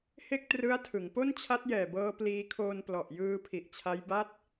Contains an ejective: no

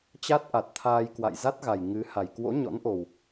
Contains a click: no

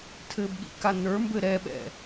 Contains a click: no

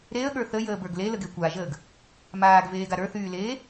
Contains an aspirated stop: no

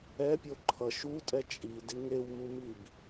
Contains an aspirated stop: yes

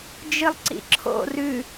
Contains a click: yes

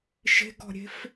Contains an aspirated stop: no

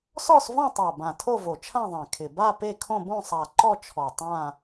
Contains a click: yes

